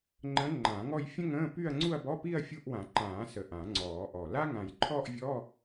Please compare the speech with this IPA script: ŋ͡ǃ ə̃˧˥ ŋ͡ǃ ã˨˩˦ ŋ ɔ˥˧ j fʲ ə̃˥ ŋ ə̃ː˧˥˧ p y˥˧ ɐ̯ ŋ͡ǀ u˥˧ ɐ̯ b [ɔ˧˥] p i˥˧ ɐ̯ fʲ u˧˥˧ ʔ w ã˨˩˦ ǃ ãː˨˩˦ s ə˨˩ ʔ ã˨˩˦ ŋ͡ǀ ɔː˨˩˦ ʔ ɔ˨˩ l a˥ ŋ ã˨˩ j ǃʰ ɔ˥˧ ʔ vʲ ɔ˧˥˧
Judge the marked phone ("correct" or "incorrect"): incorrect